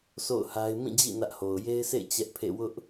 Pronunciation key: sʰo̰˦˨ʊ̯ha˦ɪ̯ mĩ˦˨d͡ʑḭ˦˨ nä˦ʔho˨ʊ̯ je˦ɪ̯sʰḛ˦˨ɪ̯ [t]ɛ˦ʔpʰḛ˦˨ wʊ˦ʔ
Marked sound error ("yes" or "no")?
yes